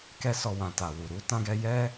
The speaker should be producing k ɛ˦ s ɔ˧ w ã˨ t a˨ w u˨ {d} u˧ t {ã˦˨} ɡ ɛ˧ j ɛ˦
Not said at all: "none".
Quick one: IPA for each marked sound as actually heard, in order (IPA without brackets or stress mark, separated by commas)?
ɾ, ã˧